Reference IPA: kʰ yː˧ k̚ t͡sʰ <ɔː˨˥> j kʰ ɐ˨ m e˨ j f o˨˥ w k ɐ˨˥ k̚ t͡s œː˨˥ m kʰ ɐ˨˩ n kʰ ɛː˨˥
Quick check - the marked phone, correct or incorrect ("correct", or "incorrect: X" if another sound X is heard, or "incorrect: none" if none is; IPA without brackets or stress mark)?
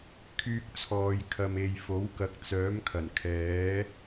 incorrect: ɔː˨